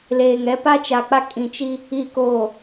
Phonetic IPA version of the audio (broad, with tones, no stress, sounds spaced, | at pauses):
l eː˨ ŋ ɛ˦ p a˦ t͡ʃ a˨ k͡p a˦ kʼ ĩ˨ t͡ʃ i˦ | i˨ k oː˨